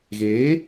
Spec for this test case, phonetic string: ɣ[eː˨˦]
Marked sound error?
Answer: no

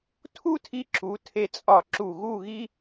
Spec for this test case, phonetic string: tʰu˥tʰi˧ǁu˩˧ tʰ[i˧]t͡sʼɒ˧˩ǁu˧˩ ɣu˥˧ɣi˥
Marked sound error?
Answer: yes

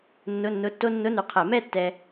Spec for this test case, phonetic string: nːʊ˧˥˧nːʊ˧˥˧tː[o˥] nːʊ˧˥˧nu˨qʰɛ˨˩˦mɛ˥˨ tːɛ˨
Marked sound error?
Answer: no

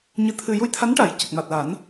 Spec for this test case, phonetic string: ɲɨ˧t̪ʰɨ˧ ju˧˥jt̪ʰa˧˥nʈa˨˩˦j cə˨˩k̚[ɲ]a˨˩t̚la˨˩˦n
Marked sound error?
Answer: yes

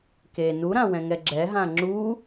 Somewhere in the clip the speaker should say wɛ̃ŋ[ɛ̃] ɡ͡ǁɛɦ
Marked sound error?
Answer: yes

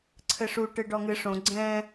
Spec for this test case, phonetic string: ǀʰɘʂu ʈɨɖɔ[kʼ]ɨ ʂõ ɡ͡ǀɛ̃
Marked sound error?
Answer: yes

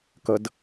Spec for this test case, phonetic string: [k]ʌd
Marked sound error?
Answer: no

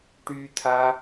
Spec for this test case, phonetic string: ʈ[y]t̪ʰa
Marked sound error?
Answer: no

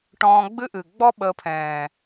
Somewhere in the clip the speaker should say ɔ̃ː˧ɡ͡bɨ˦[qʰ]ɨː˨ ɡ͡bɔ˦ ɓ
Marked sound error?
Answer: yes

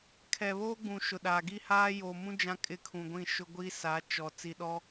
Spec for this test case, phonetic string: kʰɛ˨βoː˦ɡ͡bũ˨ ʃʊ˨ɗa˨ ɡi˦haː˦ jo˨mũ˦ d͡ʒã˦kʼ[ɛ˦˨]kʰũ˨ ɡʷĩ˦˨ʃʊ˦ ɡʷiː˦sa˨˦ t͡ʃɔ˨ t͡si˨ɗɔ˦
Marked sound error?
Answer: yes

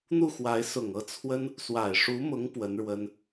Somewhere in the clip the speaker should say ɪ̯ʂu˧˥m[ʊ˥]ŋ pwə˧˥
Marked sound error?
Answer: yes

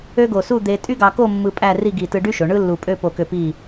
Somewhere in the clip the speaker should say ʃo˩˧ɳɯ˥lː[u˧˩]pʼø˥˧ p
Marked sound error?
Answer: no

